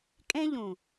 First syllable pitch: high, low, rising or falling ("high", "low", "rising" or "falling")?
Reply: high